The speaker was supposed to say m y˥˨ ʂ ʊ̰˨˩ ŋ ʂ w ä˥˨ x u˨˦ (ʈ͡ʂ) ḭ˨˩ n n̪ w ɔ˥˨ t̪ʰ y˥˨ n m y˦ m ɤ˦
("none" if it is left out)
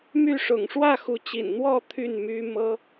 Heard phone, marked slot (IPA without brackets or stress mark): t͡ɕ